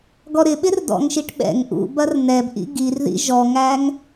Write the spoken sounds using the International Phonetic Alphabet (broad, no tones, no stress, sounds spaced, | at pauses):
ɡ ɔ ɾ ɪ ɓ ɪ r d ɔ̰ ŋ ʃ i ʈ ɓ ɛ̰ ŋ ʔ ṵ b ɐ r n ɛ b ʔ ḭ ɡ i r ð ḭ ʒ ɔ ŋ æ ŋ